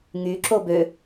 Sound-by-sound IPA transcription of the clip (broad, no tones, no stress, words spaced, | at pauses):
ŋyǁo bø